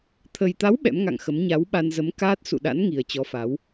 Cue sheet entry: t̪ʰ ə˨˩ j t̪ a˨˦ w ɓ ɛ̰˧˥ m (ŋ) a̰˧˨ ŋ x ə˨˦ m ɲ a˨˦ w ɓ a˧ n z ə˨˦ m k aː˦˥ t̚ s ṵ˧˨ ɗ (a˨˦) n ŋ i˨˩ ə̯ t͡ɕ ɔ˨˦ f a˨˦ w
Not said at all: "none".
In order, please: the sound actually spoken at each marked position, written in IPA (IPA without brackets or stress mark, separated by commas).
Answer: ŋ, a̰˧˥